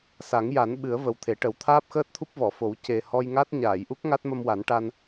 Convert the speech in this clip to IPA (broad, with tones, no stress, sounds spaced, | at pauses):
s a˨˩˦ ŋ j a˨˩˦ n ɓ ɨ˨˩˦ ə̯ v ə˨˩ w t̪ʰ e˨˩˦ ʈ ə˨˩˦ w t̪ʰ aː˦˥ p̚ x əː˦˥ t̚ t̪ʰ u˦˥ p̚ v ɔ˨˩˨ f o˨˩˦ w c e˨˩ h ɔ˧ j ŋ a˦˥ t̚ ɲ aː˨˩˨ j ʔ u˦˥ k̚ ŋ a˦˥ t̚ m ə˧ m w a˨˩˦ n ʈ a˧ n